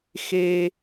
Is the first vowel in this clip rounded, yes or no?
no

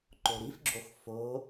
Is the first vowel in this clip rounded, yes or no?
yes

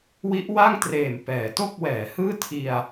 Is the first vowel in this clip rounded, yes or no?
no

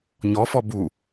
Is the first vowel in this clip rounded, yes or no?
yes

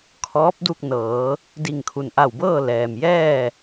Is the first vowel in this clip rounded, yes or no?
yes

